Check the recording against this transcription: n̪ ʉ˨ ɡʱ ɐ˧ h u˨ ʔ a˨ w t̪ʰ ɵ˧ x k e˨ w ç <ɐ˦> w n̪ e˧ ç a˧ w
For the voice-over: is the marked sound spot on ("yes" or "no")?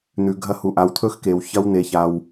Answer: yes